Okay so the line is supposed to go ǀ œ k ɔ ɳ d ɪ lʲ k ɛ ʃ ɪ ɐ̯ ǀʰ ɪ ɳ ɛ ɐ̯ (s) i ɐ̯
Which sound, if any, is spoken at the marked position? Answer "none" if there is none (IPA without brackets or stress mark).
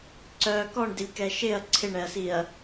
s